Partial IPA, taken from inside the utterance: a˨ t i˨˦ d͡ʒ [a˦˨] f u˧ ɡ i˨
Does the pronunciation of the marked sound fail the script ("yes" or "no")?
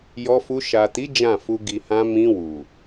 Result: yes